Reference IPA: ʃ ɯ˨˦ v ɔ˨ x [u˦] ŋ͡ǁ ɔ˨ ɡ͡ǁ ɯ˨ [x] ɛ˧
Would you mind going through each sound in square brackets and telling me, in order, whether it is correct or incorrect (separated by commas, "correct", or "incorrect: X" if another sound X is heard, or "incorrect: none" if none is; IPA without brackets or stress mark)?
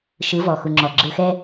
incorrect: u˨, correct